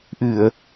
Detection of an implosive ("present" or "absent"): absent